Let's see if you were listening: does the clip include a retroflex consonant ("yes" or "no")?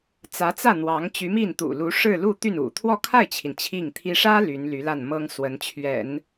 yes